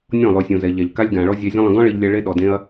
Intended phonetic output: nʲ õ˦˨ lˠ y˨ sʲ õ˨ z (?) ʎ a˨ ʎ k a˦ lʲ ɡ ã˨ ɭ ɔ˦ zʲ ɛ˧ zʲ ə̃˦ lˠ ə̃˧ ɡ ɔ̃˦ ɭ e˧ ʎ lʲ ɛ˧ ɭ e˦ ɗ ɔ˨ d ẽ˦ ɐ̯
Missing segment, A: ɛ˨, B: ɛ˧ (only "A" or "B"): A